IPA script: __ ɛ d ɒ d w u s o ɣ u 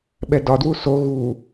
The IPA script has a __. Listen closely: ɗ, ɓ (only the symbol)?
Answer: ɓ